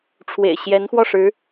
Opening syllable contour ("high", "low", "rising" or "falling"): low